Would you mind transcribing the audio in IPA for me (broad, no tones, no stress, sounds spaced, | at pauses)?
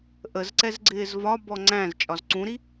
ʔ ə z ǀ ɛ z ɡ͡ǀ ɪː z v ɒ b ɔ ŋ͡ǀ æ̃ z t͡ʃʼ ɒ z ǀ ũ ɾ i